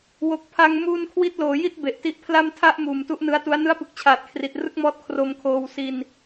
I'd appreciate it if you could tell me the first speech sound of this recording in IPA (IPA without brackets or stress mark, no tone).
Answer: w